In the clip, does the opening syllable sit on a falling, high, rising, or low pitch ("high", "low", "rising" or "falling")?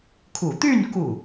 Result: low